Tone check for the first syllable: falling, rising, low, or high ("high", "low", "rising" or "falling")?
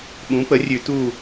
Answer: rising